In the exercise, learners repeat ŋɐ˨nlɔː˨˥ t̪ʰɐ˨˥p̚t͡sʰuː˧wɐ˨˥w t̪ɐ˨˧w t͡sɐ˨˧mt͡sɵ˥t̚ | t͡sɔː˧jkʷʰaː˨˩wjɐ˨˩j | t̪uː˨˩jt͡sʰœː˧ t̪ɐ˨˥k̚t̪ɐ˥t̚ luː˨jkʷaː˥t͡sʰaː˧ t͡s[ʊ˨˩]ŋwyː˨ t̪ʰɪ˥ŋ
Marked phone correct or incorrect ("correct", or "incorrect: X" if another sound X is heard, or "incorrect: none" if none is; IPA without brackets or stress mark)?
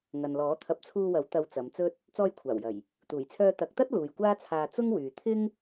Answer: incorrect: ʊ˥